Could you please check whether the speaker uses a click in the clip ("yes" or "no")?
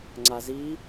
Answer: yes